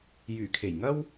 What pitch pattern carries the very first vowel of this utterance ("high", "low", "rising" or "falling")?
low